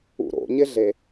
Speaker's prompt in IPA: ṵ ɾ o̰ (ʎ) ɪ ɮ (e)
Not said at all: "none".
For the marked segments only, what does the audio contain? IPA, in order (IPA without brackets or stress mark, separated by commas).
ɲ, e